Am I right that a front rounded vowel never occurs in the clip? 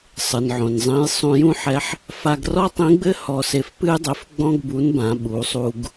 yes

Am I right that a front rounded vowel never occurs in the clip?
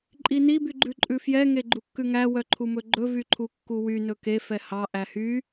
no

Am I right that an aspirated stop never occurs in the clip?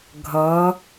yes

